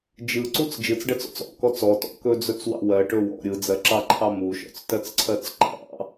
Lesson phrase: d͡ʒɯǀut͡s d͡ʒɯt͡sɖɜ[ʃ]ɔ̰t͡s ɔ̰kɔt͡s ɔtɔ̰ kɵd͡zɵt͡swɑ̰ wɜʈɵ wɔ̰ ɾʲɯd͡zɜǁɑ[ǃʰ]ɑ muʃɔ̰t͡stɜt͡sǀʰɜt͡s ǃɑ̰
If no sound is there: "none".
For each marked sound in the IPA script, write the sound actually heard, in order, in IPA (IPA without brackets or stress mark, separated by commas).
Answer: t͡s, ǃʰ